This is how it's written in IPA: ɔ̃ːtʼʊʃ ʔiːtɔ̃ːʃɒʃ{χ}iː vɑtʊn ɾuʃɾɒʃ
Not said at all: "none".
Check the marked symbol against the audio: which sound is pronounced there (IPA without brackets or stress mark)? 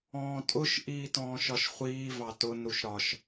χʷ